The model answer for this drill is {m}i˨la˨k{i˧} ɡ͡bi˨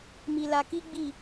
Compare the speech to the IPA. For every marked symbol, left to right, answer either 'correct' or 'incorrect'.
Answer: correct, correct

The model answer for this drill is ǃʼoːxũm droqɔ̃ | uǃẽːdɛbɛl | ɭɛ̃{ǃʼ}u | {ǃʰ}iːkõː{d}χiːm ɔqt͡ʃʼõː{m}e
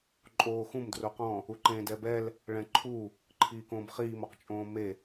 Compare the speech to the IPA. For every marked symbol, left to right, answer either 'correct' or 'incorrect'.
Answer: incorrect: ǃʰ, correct, incorrect: b, correct

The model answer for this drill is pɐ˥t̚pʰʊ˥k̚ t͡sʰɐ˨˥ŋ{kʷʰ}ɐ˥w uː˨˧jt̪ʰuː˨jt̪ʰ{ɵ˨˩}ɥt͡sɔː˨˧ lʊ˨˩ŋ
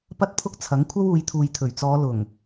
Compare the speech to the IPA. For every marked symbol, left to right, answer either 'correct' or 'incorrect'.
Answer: correct, correct

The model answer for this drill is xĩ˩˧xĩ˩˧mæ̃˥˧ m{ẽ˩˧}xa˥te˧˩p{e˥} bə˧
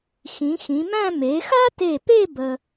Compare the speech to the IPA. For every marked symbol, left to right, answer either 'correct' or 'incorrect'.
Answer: incorrect: e˩˧, incorrect: e˥˧

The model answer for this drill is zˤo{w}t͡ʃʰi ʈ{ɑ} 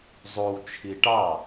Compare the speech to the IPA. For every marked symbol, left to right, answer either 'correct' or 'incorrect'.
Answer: correct, correct

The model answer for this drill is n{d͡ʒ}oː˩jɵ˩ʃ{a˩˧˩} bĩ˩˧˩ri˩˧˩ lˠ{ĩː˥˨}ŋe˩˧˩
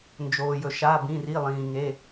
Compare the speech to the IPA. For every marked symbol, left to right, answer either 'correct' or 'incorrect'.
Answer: correct, correct, incorrect: ĩː˩

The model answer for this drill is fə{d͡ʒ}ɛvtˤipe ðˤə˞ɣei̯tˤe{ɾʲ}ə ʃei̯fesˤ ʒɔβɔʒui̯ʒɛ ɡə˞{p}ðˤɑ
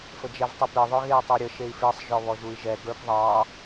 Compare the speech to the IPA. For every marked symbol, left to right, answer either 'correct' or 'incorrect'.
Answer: correct, correct, correct

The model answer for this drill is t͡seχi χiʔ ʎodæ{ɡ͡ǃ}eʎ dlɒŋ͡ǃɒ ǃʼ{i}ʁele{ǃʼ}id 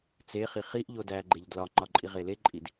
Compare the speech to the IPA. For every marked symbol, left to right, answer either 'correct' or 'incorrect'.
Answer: correct, correct, correct

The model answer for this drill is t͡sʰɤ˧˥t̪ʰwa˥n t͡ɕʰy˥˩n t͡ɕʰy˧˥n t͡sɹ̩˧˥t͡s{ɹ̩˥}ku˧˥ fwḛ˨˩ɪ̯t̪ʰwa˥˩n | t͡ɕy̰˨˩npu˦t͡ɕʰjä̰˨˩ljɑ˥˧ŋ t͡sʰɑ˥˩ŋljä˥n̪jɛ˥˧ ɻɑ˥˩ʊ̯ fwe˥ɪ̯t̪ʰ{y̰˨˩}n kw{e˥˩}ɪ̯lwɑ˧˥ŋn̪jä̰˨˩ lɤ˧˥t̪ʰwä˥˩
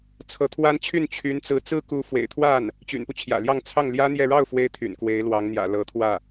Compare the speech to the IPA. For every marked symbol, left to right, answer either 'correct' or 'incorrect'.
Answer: correct, correct, incorrect: e˧˥

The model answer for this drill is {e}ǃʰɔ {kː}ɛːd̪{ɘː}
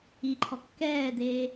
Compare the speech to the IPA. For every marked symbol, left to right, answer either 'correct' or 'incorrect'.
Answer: incorrect: i, correct, incorrect: eː

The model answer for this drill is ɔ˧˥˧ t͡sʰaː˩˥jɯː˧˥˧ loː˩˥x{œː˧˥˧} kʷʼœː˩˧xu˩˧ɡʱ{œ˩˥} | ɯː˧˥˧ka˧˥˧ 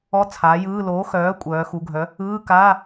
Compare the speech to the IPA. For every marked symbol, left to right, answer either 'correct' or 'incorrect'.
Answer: incorrect: œː˩˥, correct

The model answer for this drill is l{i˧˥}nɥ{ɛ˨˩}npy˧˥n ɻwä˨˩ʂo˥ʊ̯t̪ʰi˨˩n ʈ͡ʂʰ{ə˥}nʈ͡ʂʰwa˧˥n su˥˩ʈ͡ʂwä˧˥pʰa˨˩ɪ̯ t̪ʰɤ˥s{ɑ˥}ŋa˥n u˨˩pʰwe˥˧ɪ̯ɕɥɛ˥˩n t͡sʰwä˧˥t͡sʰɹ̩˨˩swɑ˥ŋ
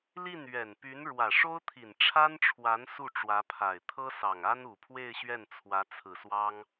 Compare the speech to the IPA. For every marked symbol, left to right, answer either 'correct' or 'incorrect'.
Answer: incorrect: i˥˩, correct, incorrect: a˥, incorrect: ɑ˨˩

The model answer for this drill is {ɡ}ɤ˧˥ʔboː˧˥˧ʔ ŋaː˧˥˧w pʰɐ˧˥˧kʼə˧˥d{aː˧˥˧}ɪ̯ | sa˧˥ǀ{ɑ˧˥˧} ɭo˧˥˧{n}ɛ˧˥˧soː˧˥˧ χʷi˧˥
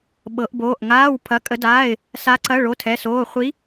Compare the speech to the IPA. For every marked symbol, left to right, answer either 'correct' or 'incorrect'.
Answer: incorrect: ɓ, correct, incorrect: ɐ˧˥˧, incorrect: tʰ

